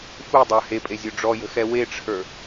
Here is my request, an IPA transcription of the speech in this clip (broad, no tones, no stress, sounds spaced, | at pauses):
f u dˤ ə˞ h e pʼ e zʲ o ɖ͡ʐ ɔ j ə̤ x ɛ w e ʈ͡ʂʰ ə˞